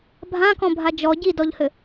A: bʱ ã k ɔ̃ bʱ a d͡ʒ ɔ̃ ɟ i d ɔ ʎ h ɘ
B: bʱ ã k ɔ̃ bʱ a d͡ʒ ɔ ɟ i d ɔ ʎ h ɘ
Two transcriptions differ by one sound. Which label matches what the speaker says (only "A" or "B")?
B